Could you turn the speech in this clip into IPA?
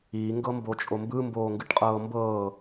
iː ŋ ɡ ɤ m b o t͡ʃʼ o m b ɯ m b oː ŋ ɡ ɯ ʈ qʼ ɤː m b ɤː

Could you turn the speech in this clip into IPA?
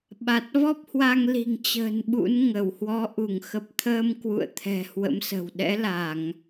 ɓ a˨˩ t̚ v ɔ˦˥ p̚ h w a˧ ŋ l i̤˨˩ ŋ t͡ɕ ə̤ː˨˩ n ɓ ṵ˧˥ n ŋ ə˧˩ w h w ɔ˨˦ ʔ u˧˩ ŋ x ə˨˩ p̚ t̪ʰ əː˧ m k w ṵ˧˨ ə̯ t̪ʰ ɛ̤˨˩ h w ə̰˧˥ m s ə̤˨˩ w ɗ ɛ̰˧˥ l a˧˩˨ ŋ

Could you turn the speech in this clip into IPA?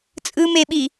t͡sʼ ɯ m e ɓ i

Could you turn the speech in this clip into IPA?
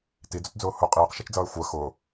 t i d͡z ʊ t d͡z ʊː h ʊ qʼ iː q ʃ ɛ t͡ʃ d͡z ʌː y̯ xʷ ɜ x ʊː

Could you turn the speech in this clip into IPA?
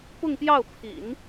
p ʊ˥˧ ŋ p j ɑ˥˩ ʊ̯ pʰ ḭ˨˩˦ n

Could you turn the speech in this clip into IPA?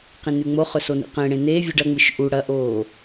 q ĩ n ʉ ŋ͡m o χ ɵ s o n ḭ q ẽ ɽ ẽ n e vʲ ʉ ɖ ɐ ŋ͡m ɨ ʃ ʔ u ɽ ɐ ʔ oː

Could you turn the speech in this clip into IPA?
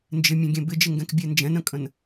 n d͡ʒ ɪ mʲ ɛ̃ ɡʲ ɛ̃ b ɪ d͡ʒ ɪ ŋ ɡ ɛ̃ k bʲ ɛ n d͡ʒ ɛ̃ n ə̃ kʼ ə̃ n

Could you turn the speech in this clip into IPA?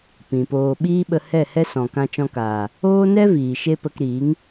p ĩ˨ p oː˧ ɓ iː˦ ɓ ə˧ h ɛ˦˨ h ɛ˦ s ɔ̃˨ k ã˧ t͡ʃ ɔ̃˧ k aː˨ | oː˦ n ɛ˦ v iː˨ ʃ e˦ p ə˧ k ɾ iː˨˦ ŋ

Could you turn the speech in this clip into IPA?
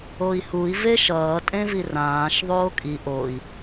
o i̯ h u i̯ v e ʃ ʌː tʼ ẽ v i r ãː ʃ ðˤ oː kʼ i ʔ o i̯

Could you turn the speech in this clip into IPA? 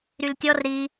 ɾ y l tʲ ɔ r ɾ i

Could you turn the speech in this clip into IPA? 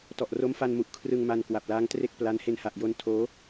t ɔ˨˩ ʔ r o˦˥ m f a˧ n m u˨˩ ʔ kʰ r ɯ˧ ŋ m a˧ n k w a˨˩ p̚ l aː˦˥ ŋ t r e˥˩ k̚ p l a˦˥ n h e˧ n h a˨˩ ʔ j o˧ n tʰ oː˦˥

